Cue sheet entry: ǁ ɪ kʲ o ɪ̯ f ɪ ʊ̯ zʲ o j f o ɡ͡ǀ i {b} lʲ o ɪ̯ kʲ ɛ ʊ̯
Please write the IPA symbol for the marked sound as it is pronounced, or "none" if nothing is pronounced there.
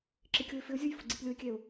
p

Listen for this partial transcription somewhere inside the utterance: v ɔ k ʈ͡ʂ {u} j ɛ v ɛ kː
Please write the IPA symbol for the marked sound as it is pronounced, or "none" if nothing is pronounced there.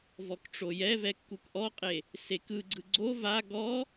o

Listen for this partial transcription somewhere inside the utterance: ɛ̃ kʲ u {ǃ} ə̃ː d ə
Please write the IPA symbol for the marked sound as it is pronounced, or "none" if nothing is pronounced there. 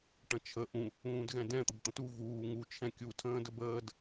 tʰ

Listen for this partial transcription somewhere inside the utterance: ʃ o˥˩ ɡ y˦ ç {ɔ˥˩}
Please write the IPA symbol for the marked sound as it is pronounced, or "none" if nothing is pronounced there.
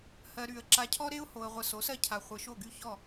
ɔ˥˩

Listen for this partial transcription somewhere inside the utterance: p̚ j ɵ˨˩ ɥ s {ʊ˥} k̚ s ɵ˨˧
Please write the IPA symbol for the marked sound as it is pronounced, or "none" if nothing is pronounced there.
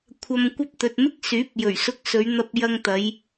ʊ˧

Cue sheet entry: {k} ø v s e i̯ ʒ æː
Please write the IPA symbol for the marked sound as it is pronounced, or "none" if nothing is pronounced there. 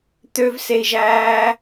t̪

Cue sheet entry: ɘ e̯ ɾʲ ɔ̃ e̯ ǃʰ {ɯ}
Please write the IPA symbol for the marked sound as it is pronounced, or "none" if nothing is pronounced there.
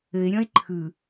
ɯ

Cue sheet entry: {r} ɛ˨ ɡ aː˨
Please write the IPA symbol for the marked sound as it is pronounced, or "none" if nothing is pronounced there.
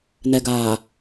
n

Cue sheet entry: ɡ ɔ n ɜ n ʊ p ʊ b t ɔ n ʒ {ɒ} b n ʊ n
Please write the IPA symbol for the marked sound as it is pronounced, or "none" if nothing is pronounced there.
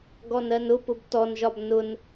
ɒ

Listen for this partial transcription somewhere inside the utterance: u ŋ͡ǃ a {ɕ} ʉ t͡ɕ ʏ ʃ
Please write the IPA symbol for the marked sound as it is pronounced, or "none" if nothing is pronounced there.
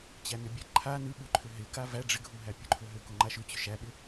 ʃ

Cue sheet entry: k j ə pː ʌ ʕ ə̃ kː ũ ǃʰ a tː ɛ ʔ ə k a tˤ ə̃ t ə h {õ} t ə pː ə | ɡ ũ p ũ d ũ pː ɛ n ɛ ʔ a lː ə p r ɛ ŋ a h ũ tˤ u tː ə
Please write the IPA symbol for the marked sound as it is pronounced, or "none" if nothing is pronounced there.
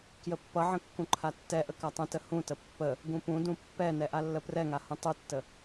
ũ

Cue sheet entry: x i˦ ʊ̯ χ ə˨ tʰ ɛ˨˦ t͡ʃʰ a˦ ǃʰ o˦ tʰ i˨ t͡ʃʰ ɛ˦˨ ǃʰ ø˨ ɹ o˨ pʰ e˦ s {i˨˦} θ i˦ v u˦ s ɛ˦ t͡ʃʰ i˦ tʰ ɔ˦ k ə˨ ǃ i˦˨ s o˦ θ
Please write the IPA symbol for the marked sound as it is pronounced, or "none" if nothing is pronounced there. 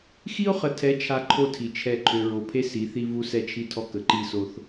i˨˦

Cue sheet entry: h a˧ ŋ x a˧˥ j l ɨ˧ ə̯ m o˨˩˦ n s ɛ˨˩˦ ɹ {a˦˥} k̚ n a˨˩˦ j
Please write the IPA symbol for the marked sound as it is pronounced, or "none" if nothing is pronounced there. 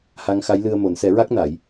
a˦˥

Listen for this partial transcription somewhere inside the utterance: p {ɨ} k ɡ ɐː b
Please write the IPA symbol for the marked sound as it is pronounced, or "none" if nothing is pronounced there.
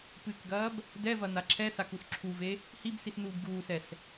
ɨ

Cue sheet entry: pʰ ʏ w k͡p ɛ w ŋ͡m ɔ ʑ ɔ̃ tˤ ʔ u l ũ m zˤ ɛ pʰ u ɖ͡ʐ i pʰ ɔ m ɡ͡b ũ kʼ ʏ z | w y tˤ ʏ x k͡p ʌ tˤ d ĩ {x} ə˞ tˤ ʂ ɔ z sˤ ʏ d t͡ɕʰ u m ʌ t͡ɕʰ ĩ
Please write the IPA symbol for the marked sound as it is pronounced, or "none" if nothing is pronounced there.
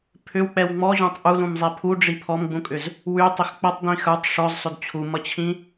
x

